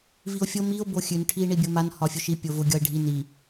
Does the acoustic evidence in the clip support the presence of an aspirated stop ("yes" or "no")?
yes